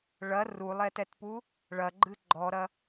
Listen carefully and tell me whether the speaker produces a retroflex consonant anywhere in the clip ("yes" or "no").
yes